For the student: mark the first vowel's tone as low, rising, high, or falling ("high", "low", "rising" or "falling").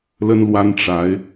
high